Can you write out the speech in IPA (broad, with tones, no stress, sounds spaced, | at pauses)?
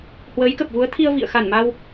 h w əː˨˦ j k ə˨˩ p̚ v u˨˦ ə̯ t̪ʰ i˧ ə̯ v ḭ˧˨ ə̯ x a˧˩ n m a˧ w